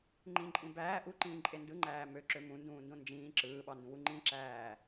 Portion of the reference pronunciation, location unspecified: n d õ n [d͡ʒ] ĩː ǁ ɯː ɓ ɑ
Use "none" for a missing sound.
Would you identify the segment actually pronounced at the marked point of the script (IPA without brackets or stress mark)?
d͡ʒ